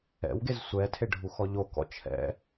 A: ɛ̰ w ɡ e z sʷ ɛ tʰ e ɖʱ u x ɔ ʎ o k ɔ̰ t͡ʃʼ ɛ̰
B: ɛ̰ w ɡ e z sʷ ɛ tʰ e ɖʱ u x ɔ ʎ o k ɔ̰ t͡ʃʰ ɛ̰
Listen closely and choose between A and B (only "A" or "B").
B